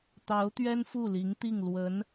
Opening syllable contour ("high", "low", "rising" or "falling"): rising